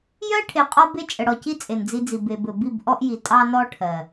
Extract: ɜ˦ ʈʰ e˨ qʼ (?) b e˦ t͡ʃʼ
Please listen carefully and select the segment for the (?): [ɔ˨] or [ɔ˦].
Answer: ɔ˦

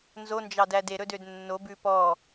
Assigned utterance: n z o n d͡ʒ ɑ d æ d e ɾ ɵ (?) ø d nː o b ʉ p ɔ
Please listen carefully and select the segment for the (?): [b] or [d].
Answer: d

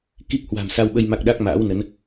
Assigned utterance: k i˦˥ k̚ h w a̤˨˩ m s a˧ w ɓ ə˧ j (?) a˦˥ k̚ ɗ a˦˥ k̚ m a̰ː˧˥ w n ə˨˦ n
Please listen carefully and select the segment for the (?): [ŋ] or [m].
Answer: m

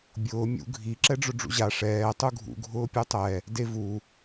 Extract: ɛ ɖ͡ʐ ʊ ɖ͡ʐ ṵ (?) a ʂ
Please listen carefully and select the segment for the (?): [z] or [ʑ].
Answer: ʑ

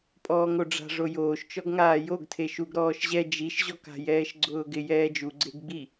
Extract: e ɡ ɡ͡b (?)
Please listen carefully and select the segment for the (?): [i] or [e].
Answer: i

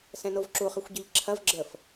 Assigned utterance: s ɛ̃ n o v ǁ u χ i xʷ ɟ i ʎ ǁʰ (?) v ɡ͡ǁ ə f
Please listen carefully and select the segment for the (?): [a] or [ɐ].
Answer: ɐ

